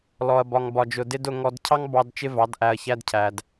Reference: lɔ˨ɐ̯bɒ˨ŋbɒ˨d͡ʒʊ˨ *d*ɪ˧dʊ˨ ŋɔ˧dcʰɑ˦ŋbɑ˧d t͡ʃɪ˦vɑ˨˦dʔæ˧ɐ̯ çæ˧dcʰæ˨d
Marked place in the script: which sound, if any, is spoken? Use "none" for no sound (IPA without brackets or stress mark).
d